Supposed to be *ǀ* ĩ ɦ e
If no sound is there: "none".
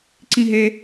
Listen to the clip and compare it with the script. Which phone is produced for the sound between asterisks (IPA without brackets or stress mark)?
ǀ